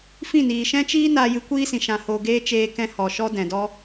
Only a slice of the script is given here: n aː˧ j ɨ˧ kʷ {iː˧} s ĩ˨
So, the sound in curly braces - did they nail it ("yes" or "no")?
no